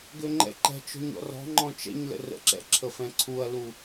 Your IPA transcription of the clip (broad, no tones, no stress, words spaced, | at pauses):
ɡøŋ͡ǃɛ̰ǃɛ̤t͡ʃɔ̤ɲ ɔ̰rɔ̤ŋ͡ǃɔ̃ t͡ʃɛ̰ɲlə̰ rə̰ǁɛ̰ ǁʰəfɛ̃ǀʰuɐ̯lu